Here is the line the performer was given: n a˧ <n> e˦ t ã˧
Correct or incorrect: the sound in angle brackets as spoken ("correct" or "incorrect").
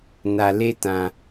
incorrect